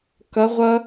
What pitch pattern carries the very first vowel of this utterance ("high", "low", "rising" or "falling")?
rising